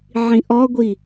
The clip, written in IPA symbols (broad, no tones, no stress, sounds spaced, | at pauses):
ʕ ĩ ʔ ɔ ɡʷ i